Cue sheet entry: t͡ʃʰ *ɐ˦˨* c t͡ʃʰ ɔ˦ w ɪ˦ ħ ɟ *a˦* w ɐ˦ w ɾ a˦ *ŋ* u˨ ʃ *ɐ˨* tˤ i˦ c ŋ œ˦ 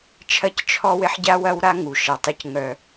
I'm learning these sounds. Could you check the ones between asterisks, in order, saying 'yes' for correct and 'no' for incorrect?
yes, yes, yes, yes

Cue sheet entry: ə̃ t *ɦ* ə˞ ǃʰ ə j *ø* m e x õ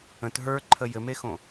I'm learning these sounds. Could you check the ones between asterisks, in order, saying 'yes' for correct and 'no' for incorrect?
yes, no

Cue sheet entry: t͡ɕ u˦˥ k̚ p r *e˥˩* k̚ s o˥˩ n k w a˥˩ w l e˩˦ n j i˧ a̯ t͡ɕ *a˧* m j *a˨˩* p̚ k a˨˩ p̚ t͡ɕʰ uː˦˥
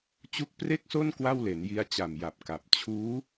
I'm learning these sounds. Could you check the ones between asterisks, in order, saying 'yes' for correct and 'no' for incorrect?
yes, no, yes

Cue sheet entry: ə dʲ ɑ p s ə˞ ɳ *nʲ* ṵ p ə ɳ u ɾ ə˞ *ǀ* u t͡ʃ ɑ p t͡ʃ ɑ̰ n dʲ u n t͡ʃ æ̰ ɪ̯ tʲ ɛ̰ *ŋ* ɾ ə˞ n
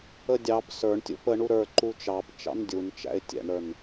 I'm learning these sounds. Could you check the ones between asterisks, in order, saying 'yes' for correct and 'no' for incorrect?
no, no, no

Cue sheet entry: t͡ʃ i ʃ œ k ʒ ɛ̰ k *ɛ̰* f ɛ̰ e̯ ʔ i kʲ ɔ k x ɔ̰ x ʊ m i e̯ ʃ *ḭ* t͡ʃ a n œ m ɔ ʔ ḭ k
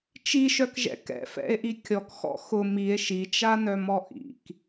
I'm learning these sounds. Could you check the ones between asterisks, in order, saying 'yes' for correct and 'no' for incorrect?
yes, no

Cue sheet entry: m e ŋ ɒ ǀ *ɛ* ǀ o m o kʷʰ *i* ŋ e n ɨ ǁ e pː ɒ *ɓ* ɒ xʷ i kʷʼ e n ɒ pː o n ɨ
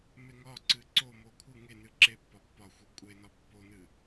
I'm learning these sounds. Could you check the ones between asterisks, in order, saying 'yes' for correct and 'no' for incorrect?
no, no, no

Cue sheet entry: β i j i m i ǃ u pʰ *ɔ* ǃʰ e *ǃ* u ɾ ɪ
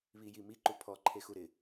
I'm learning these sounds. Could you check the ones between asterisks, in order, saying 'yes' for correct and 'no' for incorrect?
yes, no

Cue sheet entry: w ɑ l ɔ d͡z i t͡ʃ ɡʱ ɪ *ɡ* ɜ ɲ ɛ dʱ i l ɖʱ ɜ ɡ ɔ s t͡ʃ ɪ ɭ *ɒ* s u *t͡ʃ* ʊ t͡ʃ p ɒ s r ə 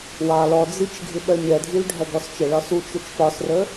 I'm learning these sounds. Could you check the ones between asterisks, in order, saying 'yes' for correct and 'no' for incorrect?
no, yes, yes

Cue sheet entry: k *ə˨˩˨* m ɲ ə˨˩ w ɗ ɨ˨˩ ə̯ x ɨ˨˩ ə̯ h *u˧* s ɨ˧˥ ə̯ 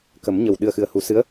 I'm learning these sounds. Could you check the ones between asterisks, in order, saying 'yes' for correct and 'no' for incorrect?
no, no

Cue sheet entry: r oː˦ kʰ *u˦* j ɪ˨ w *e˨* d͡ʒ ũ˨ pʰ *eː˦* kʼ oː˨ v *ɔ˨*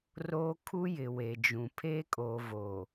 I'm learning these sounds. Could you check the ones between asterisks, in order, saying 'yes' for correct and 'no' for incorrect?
yes, yes, yes, no

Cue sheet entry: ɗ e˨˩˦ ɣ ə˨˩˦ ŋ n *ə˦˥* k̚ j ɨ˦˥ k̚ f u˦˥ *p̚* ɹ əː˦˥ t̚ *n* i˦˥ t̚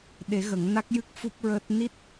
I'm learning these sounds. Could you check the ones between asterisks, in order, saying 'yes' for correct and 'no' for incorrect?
no, yes, yes

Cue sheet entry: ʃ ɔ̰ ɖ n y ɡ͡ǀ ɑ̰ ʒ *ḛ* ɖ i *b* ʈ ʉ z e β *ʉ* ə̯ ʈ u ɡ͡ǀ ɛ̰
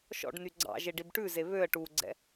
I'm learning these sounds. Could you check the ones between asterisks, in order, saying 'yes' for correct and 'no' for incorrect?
no, yes, no

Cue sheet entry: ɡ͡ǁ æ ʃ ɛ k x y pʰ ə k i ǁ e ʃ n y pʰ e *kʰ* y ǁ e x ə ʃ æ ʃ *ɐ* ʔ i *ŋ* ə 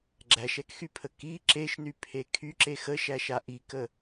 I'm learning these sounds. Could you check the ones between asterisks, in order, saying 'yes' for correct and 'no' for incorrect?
yes, no, no

